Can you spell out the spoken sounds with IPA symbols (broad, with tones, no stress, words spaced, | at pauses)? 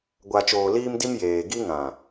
ɡʷa˨t͡ʃoː˨ liː˦mdi˦m jeː˨ɡi˦ŋã˨